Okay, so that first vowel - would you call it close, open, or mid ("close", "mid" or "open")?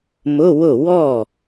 close